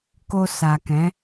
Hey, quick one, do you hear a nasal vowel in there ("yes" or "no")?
yes